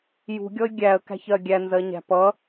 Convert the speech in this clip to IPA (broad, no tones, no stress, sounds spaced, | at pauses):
j ṳ ɡʲ ɔ ɪ̯ ɡʲ æ ə̯ k æ̤ ç ɜ ɡʲ æ n z ɜ ɲ æ̤ p ʌ